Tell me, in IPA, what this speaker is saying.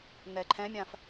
nɛǃʰɛ̃mʲãf

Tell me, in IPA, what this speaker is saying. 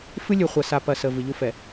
fɨ˦lʲɨ˨χʷa˨ sa˨pɐ˨ sə˨ vɨ˨ʎu˦ fɛ˨

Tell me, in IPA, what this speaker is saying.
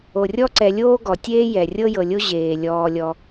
o˩rʲɔ˥ǀɛ˨ lʲoː˥ɡɔ˩tʲeː˥ jɛ˩rʲɤ˥jɤ˨lʲo˥ ʑeː˩ lʲɔː˨lʲɔ˨

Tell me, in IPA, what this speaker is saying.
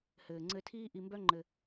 hɘː˩ŋ͡ǀɘ˨ tʰiː˦ʔi˨mbœ˦ ŋ͡ǃɘ˨

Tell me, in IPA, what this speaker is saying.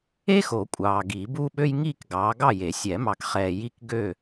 e˥xo˨˩˦ kʷʼɑː˨ ɡi˨˩˦buː˥ɓø˥j ŋiː˥˨kɡɑː˨˦ɡɑ˥˨je˨˩˦ sʲɛ˨˩˦mɑ˨kχɛː˨ ji˥˨kɡø˥˨

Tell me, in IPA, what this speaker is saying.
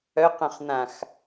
œqœ̃χn̪ãx

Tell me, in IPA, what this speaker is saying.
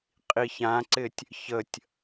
qʼiçãǀɪtʲ | çətʲ

